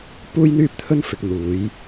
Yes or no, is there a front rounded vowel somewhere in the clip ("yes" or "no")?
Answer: yes